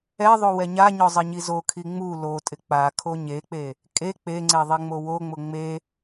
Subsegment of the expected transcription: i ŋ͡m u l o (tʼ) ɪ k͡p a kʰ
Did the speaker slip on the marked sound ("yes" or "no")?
no